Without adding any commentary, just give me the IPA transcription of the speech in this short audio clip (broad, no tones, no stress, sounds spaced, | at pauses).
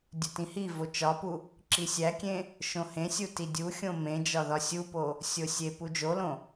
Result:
dʲ u t ĩ h i v o t͡ʃ ɒ p u | ǁ i sʲ æ kʲ ẽ | ʃ õ h ẽ sʲ u t i dʲ u xʲ õ m ẽ d͡ʒ ɒ ð ɒ sʲ u p o | sʲ o sʲ e p u d͡ʒ o l õ